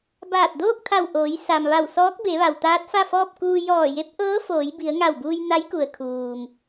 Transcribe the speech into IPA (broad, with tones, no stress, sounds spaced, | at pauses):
b aː˧˩ t̚ d oː˥˨ k̚ t̪ʰ a˧˩ w ʔ oː˩˧ j s a˩ m ʋ a˧˩ w s ɔː˧˥ k̚ b e˩˧ ʋ a˩ w t̪ aː˧˥ t̚ f a˥˨ f ɔː˥˨ p̚ k uː˧ j ɔː˧˩ j e˧˥ p̚ ʔ ɤː˧˥ f oː˩˧ j b i˩˧ ə̯ ŋ a˧˩ w b uː˧ j n a˧˥ j k u˩ ə̯ kʰ uː˩ m